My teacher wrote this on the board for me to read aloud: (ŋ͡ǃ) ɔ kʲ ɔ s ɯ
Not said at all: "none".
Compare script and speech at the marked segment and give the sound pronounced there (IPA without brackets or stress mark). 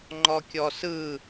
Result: ŋ͡ǃ